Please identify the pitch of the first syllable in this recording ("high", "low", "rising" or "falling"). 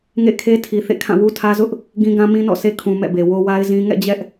falling